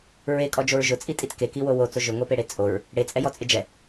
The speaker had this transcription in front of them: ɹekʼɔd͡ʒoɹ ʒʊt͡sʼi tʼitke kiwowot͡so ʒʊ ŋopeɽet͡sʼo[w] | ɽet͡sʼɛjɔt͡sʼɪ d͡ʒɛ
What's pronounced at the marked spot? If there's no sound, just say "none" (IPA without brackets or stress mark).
ɹ